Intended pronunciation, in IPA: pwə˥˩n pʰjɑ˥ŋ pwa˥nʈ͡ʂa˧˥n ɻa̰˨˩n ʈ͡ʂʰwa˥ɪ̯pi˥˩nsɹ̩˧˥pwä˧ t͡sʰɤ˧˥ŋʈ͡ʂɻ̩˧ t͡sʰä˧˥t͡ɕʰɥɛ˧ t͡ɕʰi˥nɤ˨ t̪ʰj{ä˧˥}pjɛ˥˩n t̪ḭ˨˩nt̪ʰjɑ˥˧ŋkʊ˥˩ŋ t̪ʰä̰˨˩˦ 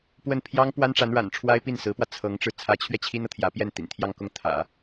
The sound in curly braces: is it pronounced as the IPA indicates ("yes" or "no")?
yes